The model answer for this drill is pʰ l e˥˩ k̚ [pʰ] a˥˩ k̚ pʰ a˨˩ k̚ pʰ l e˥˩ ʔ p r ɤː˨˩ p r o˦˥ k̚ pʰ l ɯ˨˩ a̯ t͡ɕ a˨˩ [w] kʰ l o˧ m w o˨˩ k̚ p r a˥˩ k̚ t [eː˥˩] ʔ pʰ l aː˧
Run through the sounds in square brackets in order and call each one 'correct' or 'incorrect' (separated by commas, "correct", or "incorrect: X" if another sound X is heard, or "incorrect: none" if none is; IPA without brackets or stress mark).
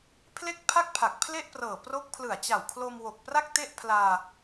correct, correct, incorrect: e˥˩